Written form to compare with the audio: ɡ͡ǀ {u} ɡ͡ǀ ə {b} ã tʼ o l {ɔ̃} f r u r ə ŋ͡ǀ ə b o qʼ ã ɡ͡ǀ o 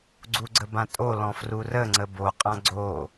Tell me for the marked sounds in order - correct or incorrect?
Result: correct, correct, correct

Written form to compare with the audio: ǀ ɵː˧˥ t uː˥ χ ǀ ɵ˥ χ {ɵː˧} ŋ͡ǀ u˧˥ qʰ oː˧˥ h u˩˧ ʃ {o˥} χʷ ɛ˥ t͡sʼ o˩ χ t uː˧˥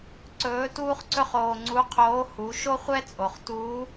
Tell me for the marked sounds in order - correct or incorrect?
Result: incorrect, correct

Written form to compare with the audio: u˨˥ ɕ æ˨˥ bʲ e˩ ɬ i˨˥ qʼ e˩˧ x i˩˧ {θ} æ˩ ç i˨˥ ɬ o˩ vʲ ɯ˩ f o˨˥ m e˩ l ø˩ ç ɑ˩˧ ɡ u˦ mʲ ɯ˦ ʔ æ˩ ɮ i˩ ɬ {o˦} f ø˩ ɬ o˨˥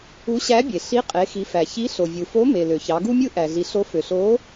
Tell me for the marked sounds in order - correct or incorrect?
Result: incorrect, incorrect

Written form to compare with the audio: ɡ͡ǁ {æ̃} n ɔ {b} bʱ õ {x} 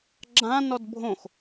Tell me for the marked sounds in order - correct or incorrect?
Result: incorrect, incorrect, correct

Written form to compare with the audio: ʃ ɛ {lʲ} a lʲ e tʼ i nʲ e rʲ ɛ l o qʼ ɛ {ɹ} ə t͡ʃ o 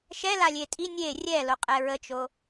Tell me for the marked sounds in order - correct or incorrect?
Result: incorrect, correct

